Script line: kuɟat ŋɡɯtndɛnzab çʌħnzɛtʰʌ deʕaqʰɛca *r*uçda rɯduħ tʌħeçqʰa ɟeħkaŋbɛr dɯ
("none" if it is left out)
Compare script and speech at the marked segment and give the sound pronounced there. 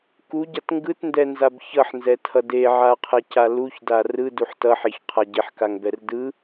l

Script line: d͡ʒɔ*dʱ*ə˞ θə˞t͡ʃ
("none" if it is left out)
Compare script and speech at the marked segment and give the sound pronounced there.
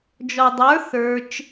dˤ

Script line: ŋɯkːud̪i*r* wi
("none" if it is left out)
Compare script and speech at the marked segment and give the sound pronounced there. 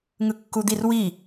r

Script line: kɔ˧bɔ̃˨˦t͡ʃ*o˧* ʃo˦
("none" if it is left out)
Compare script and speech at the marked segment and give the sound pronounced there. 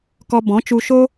u˧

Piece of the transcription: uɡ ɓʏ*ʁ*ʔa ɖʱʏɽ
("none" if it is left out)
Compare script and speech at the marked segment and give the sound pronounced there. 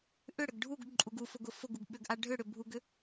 ɡ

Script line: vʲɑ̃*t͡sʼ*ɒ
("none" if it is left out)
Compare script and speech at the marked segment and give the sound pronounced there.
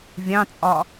t͡sʼ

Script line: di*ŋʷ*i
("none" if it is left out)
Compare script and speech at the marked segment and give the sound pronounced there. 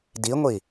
ŋʷ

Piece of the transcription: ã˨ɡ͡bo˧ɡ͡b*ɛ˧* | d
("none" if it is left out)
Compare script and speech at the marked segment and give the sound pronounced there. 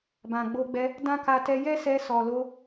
ɛ˧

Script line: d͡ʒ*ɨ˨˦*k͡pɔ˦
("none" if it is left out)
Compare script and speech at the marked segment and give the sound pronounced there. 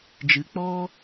ɨ˨˦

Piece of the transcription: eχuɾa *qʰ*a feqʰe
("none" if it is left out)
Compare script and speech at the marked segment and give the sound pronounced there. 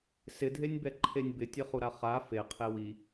χ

